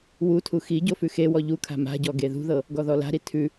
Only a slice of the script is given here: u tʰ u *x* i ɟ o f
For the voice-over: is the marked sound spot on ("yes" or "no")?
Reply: yes